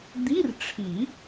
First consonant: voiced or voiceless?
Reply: voiced